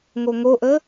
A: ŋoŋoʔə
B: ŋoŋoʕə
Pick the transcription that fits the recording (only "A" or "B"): A